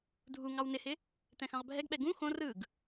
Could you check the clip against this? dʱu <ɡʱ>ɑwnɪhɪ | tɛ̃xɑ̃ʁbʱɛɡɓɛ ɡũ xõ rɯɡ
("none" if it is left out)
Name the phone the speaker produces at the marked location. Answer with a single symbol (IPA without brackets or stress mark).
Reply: ŋ